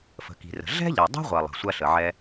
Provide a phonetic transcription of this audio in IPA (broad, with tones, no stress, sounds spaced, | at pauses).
f ə̤˩ k i̤˩ r ə̤˩ ɮ ɛ̤˥ ʎ ɐ˩ dˤ ɛ̤˥ ʁʷ ɐ˩ lˠ ə̤˩ sʷ ɐ˥ ɬ ə˩ ʕ ɛ˥